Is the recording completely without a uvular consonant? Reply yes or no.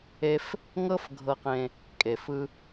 no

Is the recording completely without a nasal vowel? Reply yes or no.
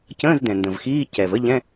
no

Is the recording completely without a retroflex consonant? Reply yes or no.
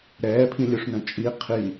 no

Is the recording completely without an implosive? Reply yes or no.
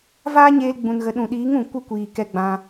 no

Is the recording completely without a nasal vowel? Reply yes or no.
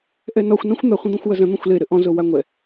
no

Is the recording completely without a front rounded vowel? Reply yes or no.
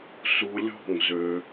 no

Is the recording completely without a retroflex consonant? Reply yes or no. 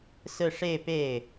no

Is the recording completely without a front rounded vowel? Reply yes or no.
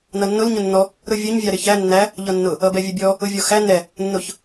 yes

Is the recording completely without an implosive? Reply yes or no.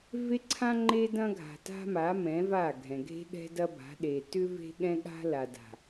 no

